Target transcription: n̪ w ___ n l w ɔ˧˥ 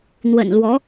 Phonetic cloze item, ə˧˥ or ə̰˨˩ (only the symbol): ə̰˨˩